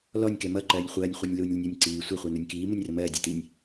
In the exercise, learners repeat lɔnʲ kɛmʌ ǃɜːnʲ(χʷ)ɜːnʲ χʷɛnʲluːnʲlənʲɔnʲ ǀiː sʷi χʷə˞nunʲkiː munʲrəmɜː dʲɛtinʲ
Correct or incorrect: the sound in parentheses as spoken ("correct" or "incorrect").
correct